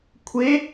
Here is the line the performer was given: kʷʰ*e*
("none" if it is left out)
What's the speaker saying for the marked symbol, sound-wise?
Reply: e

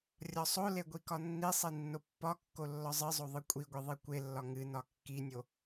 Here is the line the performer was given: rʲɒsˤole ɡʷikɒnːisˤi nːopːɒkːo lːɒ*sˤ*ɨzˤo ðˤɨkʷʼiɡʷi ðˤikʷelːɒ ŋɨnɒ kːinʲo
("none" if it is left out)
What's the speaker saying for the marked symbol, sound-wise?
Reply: zˤ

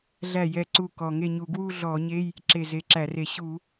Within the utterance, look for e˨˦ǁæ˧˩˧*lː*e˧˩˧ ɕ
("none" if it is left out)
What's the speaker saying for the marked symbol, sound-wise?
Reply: r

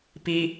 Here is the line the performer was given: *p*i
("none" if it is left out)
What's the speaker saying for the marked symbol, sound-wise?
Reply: p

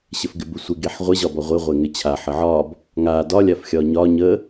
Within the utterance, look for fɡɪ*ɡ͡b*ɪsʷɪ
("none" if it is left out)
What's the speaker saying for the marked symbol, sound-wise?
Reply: b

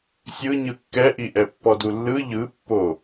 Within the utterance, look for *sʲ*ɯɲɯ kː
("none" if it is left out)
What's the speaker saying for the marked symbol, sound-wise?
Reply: sʲ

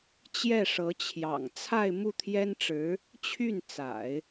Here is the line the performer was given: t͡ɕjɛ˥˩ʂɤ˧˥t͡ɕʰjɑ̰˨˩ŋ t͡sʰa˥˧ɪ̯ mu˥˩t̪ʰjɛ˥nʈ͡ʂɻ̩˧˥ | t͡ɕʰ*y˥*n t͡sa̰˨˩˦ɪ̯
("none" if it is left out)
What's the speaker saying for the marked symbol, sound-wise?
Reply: y˥˩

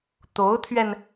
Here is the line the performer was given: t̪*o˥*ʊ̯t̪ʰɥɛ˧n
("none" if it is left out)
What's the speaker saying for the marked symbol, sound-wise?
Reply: o˧˥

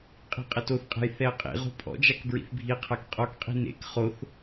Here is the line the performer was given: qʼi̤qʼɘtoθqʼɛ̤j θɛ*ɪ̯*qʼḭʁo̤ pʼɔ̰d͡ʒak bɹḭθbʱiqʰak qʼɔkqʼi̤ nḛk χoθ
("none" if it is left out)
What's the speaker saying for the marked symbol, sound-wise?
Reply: ə̯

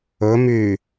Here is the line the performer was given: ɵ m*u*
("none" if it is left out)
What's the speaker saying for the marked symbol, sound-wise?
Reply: y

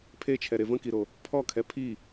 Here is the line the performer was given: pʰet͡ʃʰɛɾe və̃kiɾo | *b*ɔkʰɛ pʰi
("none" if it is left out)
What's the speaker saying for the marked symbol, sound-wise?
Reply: pʰ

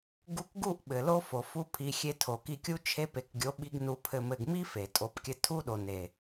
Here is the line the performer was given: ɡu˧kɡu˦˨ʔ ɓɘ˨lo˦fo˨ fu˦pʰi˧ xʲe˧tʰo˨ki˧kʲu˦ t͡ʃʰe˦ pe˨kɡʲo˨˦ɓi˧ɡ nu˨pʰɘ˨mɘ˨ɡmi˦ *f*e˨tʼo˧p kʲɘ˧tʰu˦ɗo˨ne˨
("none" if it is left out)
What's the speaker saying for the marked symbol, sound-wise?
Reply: f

